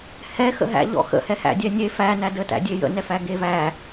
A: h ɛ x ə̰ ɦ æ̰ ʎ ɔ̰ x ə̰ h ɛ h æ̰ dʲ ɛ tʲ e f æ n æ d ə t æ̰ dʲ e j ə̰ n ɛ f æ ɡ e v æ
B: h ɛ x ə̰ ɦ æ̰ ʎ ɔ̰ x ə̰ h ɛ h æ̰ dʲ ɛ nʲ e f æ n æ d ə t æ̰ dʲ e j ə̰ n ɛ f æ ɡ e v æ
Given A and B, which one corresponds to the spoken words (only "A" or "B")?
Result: B